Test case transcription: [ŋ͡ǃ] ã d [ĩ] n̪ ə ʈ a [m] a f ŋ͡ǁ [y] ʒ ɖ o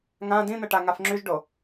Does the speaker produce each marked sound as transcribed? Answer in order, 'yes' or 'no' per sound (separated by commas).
no, yes, no, yes